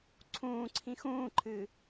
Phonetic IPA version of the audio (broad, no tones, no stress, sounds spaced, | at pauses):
ǀʰ ũː ǀʰ ĩ x ũː ǃʰ ɨː